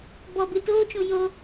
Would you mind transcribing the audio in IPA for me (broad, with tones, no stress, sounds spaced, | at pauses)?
b ɔ˨ b ɨ˨ t oː˦ t͡ʃ ũ˨ j o˧